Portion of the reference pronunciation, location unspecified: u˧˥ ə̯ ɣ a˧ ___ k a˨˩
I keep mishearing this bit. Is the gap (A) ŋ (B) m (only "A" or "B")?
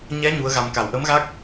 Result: B